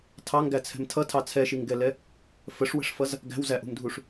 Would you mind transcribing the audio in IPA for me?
tʰ ɑ ŋ ɡ æ t͡sʰ ɛ̤ m tʰ ʌ tʰ ɑ t͡sʰ ɛ ʃ i ŋ ɡ ɛ l ɛ | f ə ʂ w ə̤ ʂ f ʌ z | ɡ æ̤ w z æ ʔ ṳ m dʱ u ʂ

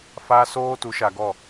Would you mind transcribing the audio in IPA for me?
f a˦ s oː˦ t u˨˦ ʃ a˨ ɡ ɔ˦˨

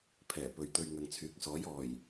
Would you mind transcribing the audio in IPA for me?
pʰ ɛː˨˩ p ɵ˨ ɥ t̪ ɵ˧ ɥ ŋ ɐ˨ ŋ t͡sʰ yː˨˥ k̚ s ɔː˨˥ j ɔː˨˩ j

